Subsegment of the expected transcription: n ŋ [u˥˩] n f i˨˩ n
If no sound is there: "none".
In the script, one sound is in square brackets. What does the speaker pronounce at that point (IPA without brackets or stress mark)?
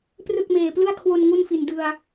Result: u˥˩